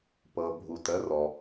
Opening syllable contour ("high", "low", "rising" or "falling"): low